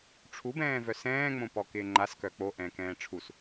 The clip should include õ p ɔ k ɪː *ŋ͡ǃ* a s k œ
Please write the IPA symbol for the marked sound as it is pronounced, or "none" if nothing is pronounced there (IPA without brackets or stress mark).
ŋ͡ǃ